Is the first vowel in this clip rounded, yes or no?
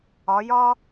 yes